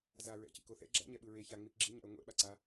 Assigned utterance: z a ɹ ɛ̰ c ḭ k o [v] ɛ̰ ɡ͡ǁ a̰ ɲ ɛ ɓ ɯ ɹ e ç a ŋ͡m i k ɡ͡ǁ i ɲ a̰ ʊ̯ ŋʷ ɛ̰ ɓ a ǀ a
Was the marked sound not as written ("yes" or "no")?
yes